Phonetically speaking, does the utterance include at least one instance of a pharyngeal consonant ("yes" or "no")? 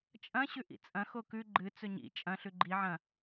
yes